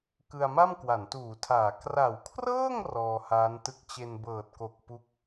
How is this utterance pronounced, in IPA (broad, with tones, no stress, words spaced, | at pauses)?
kɯ˧a̯ ma˥˩mkwa˩˦ntuː˩˦tʰaː˩˦ kra˩˦wkʰrɤː˥˩ŋ rɔː˧haː˦˥ntɯ˦˥k̚ t͡ɕe˧nbɤː˨˩t̚ko˨˩k̚ pu˦˥k̚